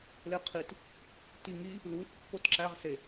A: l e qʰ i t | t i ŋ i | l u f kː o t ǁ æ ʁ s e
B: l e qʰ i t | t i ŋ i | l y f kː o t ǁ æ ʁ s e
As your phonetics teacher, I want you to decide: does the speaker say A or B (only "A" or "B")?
A